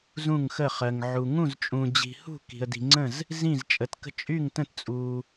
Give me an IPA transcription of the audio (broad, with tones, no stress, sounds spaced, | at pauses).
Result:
z ũ˥˧ ŋ x ə˥˧ χ ɜ˧ ŋ ʕ u˧ ŋ ũ˥˧ z t͡ʃʼ ũ˧ d͡ʑ i̤˧ h ṳ˥˧ k i̤˧ ə̯ d i̤˧ ŋ͡ǀ ə̃˥˧ z | z ĩ˥˧ z t͡ʃʼ ə˧ t k ə̤˥˧ t͡ʃʼ y˥˧ ŋ t ə̃˥˧ t t͡sʼ u˧